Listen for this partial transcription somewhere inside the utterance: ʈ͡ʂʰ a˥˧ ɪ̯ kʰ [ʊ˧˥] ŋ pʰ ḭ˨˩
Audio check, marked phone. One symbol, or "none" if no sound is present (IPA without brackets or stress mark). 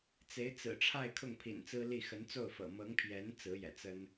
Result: ʊ˥˩